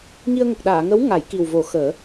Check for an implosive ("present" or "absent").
present